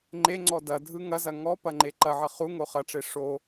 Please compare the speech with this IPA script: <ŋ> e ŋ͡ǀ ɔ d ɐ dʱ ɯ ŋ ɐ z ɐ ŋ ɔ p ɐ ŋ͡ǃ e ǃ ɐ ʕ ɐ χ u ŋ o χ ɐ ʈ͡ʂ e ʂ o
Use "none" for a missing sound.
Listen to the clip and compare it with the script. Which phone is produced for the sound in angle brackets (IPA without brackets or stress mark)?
ŋ͡ǃ